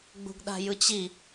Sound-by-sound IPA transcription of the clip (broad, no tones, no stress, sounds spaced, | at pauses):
ɡ͡b ṳ ɡ ɗ a̤ j ɯ t͡ɕ i